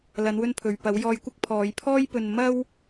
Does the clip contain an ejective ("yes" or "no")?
no